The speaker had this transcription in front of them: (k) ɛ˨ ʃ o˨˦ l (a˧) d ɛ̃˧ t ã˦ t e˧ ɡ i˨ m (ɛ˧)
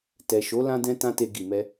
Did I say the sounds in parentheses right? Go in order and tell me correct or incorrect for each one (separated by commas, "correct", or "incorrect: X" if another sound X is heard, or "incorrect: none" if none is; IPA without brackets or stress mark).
incorrect: t, incorrect: ã˧, correct